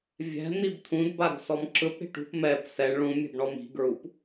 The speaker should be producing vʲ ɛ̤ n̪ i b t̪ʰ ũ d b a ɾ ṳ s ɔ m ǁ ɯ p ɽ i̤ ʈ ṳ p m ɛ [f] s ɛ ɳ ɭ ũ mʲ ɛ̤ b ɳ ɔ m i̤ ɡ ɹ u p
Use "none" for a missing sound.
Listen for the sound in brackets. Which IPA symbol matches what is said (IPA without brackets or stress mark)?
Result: b